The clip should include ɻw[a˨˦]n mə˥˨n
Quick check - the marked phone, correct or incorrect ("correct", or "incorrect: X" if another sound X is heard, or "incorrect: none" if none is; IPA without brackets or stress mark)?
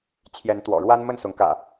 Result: incorrect: a˦